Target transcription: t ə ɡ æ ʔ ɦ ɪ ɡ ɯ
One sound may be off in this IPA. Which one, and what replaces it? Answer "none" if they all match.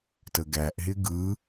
none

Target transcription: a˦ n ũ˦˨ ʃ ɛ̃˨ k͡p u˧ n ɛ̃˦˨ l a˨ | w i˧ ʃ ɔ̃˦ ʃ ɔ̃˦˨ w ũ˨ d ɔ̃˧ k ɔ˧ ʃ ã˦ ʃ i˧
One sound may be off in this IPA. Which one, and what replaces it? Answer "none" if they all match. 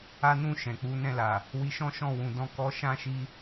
u˧ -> u˨˦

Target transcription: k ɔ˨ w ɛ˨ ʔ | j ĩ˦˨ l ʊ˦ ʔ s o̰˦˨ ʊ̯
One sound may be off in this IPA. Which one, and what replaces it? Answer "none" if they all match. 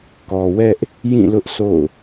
ɛ˨ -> ɛ˦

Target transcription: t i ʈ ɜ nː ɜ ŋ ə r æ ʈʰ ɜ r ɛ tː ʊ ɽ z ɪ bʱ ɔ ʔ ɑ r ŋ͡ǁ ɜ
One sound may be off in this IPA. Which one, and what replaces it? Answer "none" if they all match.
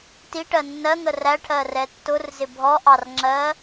ɽ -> r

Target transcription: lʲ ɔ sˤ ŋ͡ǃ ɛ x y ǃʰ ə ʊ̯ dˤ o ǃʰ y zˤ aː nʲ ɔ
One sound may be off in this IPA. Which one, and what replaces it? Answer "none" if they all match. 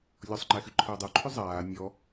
none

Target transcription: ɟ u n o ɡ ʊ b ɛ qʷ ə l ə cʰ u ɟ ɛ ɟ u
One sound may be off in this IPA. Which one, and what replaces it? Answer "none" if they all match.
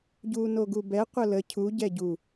ʊ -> u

